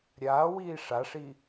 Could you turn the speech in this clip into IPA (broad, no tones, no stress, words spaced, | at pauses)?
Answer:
ɾʲaːwiː ʂaʂi